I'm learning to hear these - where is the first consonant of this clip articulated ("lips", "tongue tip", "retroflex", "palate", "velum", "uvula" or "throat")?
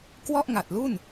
velum